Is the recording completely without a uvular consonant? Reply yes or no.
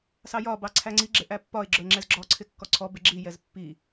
yes